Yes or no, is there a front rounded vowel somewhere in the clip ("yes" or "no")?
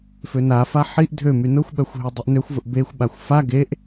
yes